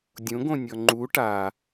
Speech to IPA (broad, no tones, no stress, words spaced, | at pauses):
dʲõɡõ nʲɔŋ͡ǃu ʈa